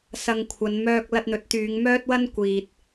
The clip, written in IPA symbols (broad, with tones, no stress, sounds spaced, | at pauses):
s ɐ˧ ŋ kʷʰ ɐ˨˧ n m œː˧ k̚ l ɐ˧ t̚ n̪ ɵ˨˥ t̚ t̪ yː˨˧ ŋ m œː˥ t̚ w ɐ˥ n kʷ iː˨ t̚